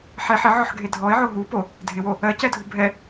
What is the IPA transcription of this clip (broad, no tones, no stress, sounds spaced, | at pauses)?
ħ ɛ ħ ɪ ʕ ɔ ħ ɡʱ e dʱ ɔ ɪ̯ ʕ o ɦ u p o | dʱ ɪ w o | ɜ c ɛ dʱ u bʱ ɛ